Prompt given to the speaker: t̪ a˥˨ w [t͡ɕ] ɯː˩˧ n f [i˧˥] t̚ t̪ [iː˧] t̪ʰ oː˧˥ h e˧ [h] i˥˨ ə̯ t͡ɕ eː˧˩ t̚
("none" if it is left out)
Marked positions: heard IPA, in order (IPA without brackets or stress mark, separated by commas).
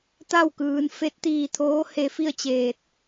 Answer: k, e˧˥, iː˧, f